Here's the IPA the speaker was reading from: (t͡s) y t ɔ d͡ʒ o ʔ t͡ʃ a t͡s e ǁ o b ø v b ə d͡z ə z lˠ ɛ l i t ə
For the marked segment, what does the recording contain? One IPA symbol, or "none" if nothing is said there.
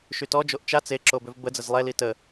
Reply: ʃ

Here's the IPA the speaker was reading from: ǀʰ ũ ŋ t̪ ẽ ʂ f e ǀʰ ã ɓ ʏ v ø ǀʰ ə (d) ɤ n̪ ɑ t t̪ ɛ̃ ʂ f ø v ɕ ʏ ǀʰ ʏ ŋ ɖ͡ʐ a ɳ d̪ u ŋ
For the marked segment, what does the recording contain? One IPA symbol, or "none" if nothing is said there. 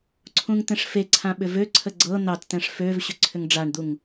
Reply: ɡ͡ǀ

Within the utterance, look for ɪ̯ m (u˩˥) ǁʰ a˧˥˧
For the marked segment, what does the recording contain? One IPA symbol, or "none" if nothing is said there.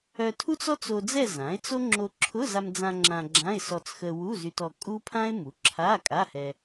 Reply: u˩˥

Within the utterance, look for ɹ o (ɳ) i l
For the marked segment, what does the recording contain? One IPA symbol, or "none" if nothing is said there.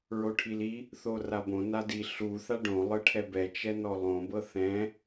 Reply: ʈʰ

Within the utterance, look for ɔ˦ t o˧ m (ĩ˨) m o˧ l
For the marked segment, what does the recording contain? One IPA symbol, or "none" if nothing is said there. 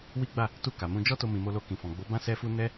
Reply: ĩ˨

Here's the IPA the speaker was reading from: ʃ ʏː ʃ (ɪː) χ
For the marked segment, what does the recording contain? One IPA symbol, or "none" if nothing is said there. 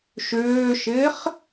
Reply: ɪː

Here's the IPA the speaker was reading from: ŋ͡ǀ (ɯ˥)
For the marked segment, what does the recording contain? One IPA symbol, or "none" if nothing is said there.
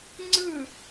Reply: ɯ˥˨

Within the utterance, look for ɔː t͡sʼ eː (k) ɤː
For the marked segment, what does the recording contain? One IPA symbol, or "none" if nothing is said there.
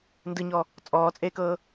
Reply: k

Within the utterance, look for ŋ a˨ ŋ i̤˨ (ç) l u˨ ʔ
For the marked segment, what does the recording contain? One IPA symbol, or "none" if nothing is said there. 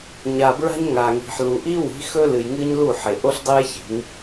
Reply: ħ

